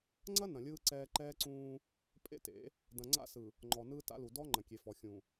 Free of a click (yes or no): no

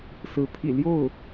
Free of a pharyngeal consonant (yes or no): yes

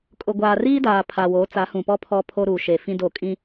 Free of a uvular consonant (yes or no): yes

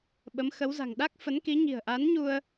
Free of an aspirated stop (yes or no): yes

